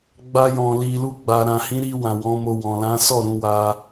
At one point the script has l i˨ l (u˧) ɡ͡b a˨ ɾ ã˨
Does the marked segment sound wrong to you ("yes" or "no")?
no